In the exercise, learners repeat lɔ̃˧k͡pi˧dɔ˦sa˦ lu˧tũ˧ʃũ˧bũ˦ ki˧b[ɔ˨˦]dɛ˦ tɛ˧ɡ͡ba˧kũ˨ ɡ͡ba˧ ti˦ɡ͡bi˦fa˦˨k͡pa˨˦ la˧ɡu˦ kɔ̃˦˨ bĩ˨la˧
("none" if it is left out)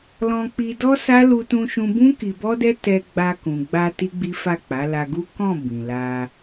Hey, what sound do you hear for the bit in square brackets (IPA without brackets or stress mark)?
ɔ˦